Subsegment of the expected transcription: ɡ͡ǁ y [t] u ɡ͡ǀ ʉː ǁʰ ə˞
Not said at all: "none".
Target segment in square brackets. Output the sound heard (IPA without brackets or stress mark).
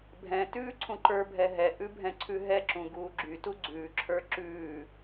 t